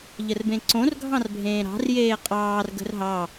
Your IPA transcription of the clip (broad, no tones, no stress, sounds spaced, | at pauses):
ʎ ə r b ẽ ǀ õ r ɡʱ ɑ̃ r bʱ ẽː ɾ ɑ̤ r j eː qʼ ɑː r ɡ ə̤ r ɦ ɑ